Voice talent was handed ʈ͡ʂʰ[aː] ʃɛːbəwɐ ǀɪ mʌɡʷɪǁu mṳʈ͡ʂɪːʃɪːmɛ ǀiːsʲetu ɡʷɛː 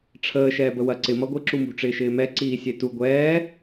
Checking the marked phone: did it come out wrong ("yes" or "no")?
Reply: yes